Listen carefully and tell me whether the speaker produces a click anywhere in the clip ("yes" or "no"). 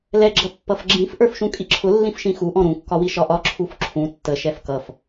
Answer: yes